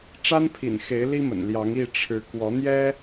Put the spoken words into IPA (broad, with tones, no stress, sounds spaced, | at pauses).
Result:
ʈ͡ʂ a˦ n pʰ ḭ˨˩ n x e˨˦ ɪ̯ l i˦ m ə̰˨˩ n l j ɑ˨˦ ŋ i˥˨ ʈ͡ʂʰ ɻ̩˨˦ k w ɔ˨˦ n̪ j ɛ˦